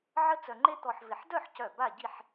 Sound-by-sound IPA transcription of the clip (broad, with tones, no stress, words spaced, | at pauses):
ʕə˥ t͡sœ˧ŋ͡ǃe˥ t̪ɔ˧ħvɪ˧˩ħ dœ˥˧ħcœ˧˩ ba˥˧ɟi˥˧ħ